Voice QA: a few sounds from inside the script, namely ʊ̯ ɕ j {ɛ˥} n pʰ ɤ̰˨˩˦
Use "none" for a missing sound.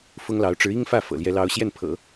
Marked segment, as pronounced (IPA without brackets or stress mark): ɛ˥˩